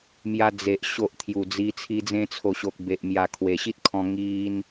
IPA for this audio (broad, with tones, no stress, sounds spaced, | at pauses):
m j a˧ d͡z e˨ ʔ ɕ o˨ ʔ t̪ʰ j u˨˩ d͡z i˧ t͡sʰ i˧ d͡z ẽ˧ t͡sʰ o˨˩ ɕ o˨ k̚ b e˨ ʔ m j a˨˩ kʰ w e˨˩ ɕ i˦ t̚ kʰ ɔ̃˧ ŋ i˧ n